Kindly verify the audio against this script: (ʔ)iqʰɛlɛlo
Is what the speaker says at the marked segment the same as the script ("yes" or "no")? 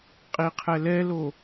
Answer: no